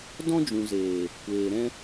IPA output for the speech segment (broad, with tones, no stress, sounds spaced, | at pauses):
d ɔ̃˦ d͡ʒ ũ˨ z eː˨ | kʷ eː˨ ɾ ɛ̃˦